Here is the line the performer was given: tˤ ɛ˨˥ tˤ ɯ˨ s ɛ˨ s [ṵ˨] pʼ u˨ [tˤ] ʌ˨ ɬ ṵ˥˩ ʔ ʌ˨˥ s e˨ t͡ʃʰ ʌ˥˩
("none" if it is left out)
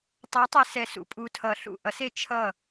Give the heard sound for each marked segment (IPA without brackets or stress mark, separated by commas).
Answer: ṵ˨, tʰ